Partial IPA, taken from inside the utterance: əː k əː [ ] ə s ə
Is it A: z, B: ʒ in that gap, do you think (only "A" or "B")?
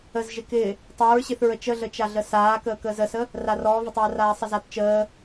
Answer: A